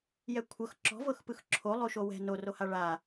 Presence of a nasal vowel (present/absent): absent